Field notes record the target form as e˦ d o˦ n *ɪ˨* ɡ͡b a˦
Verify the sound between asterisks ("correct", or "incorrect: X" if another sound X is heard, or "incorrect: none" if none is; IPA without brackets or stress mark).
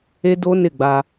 incorrect: ɪ˦˨